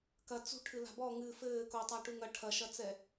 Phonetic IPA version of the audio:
kɐ t͡sṳʈʰɨ la̤bɔ ŋɨ fɘːko tˤaʈuŋɐ ʈʰɐʃɐt͡sɛ

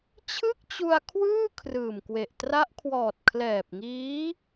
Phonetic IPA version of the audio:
t͡ɕʰɯ˥˩k̚t͡ɕu˧a̯kʰwɯː˥˩ kʰrɯː˨˩mkwe˨˩ʔ tra˦˥ʔkʰwɔː˨˩t̚ kʰlɛː˨˩p̚ŋiː˦˥

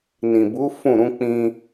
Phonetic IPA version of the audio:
nĩ˨bu˨˦ fũ˦˨ɾũ˨˦ k͡pĩ˧

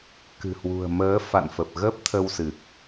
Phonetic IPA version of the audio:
kɨ̤˨˩hwṳ˨˩ə̯ məː˨˦ fa̰˧˨nfə˨˩p̚ ɣəː˦˥p̚t̪ʰə˧w sɨ˨˩k̚

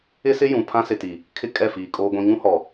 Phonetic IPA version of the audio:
ɪ˦sɪ˦ jũ˨ pʰã˦sɪ˨ti˨ | kʰɪ˦ kʼɛ˦˨fiː˨kʼoː˦ɡʷĩ˦ ŋũ˦hɔ˨

